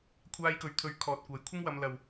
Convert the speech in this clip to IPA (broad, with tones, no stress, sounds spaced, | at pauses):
kʷʰ aː˧ j k ɵ˨ ɥ t̪ʰ ɵ˨˥ ɥ kʰ ɔː˨ t̚ kʷ ɐ˨˥ j kʷʰ ɪ˥ ŋ w ɐ˧ m l ɐ˨ w